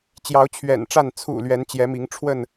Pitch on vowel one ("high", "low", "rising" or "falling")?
rising